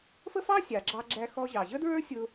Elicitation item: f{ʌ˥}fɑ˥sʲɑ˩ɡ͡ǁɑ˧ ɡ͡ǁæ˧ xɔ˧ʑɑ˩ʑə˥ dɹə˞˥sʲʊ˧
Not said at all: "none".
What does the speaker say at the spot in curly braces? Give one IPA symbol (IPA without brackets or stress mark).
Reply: ə˥